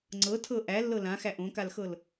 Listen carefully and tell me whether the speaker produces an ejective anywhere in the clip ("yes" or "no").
no